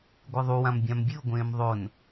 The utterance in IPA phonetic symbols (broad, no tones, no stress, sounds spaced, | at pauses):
ɡʷ ɨ ðˤ u w ã m bʲ ã m bʲ ɨ o̯ ɡʷ ẽː m ðˤ o n